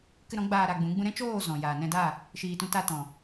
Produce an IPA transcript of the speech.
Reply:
k ɨ˧ ɾ ɔ̃˨˦ ɡ͡b aː˧ ɾ a˧ ɡ͡b ũ˨˦ ɡ͡b ũ˦ ɾ ɛ̃˦ t͡ʃ oː˦˨ z ɔ̃˨ j aː˨ n ɛ̃˧ d a˦˨ | ʃ iː˨ t ũ˧ t a˧ t ɔ̃˨

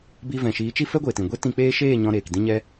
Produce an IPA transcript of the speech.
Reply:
b i˧ v ɛ̃˨ ʃ iː˨˦ t͡ʃ i˦ f ɛ˦ ɡʷ e˨ t ĩ˨ ɡʷ e˦ t ĩ˧ k͡p eː˦ ʃ eː˦˨ ɲ ɔ̃˧ ɾ eː˨ k d ĩ˦ ɲ ɛ˦

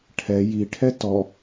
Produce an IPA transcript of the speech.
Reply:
ʈʰ ɛ j i ʈʰ ɛ t ɔ

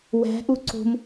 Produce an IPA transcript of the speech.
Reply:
w æ̤ ʔ u ǀ o̤ m

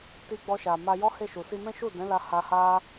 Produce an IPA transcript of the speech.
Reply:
t i˧ ɡ͡b ɔ˧ ʃ a˨ m a˧ j ɔ˦ h e˦˨ ʃ u˨ s i˧ m ɛ̃˦ ʃ u˦˨ d ɛ̃˨˦ l a˧ h a˧ h a˦

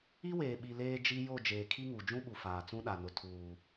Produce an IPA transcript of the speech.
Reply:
i˦ w eː˨ ɓ i˨ l eː˦ d͡ʒ i˦ j o˦˨ d͡ʒ eː˨ kʰ i˦ ŋ u˨ d͡ʒ ũ˦ ɓ u˨ f aː˨ t͡s ũ˦ ɗ a˨ n ʊ˨ tʰ uː˨

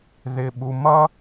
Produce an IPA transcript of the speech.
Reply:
ð ɪ˩ ɓ u˩ m ʌ˥

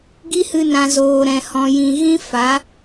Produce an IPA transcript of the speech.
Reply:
ɡ i˦ h ɨ˧ n ã˨ z oː˨ ɾ ɛ̃˨ h ɔ̃˨ j ĩ˨ ɣ ĩ˦ f a˨˦

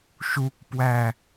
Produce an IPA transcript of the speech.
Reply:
ʃ u k p w æ

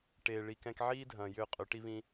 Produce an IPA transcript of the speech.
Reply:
ʈ eː˨ ɭ i˧ k ɛ̃˦ k ʕ iː˦ dʱ ɐ̃ː˨ j ʏː˧ qʼ ʏ˨˦ ʈ i˦ β ĩ˦

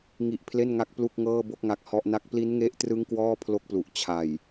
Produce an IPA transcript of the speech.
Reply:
ŋ i˦˥ ʔ pʰ l e˥˩ n ŋ a˥˩ k̚ p l u˥˩ k̚ ŋ ɤː˥˩ b o˥˩ k̚ ŋ a˦˥ k̚ h ɔ˦˥ ʔ n a˥˩ k̚ p l i˦˥ n ŋ e˦˥ ʔ t r ɯ˦˥ ŋ k w ɔː˥˩ pʰ l o˦˥ k̚ p l u˨˩ ʔ t͡ɕʰ a˨˩ j

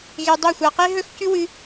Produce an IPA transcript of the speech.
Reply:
ɣ e˧ dˤ o˦˨ xʷ a˧ q e˦ ɦ ɵ˦ x c ʉ˦ w ɨ˦

